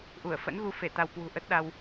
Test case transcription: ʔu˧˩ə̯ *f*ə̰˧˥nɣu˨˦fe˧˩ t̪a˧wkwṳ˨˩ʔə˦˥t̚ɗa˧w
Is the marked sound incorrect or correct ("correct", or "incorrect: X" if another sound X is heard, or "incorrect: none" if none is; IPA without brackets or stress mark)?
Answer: correct